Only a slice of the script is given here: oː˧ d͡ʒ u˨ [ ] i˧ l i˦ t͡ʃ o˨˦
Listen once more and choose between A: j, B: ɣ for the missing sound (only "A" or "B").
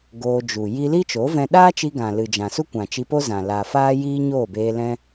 A